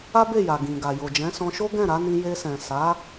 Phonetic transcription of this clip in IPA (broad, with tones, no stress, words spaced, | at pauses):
a˦be˦˨ja˨ ɡĩ˨ɡa˨ jo˨d͡ʒɛ̃˨˦sɔ̃˧ʃo˦ ɡɛ̃˦˨ɾa˨˦nĩ˧ je˧sɛ̃˨ sa˨˦